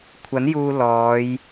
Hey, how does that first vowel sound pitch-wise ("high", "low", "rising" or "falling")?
rising